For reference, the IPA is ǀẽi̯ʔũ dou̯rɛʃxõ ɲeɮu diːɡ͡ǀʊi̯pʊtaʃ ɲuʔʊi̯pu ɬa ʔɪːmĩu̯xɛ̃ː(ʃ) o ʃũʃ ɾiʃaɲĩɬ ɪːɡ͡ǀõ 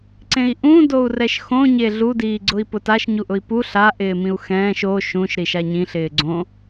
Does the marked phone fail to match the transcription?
no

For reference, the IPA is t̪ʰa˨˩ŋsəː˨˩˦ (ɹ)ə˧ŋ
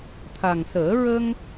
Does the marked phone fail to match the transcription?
no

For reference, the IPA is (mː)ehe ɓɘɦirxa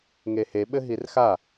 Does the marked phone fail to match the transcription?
yes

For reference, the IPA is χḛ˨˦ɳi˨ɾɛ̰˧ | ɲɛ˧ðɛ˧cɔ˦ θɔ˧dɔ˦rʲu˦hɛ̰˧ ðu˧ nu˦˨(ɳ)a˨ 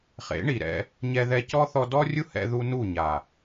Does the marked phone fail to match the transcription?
yes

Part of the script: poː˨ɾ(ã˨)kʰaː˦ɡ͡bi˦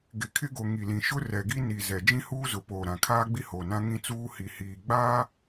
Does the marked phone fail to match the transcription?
no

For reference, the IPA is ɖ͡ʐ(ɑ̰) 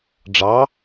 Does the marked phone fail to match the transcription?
yes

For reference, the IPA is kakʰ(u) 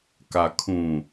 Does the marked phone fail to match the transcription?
yes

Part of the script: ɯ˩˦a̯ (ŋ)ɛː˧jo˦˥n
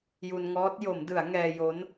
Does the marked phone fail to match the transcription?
no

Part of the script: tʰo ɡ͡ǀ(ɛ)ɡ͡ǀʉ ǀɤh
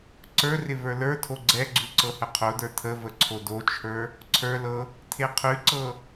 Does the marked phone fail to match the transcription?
no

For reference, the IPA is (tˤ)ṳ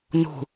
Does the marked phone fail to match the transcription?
yes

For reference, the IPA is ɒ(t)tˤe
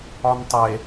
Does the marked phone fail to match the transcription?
yes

